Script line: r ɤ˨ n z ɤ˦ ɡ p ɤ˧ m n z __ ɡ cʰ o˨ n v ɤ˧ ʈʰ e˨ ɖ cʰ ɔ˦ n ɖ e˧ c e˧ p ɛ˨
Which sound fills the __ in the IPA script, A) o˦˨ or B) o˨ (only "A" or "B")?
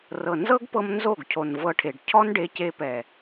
A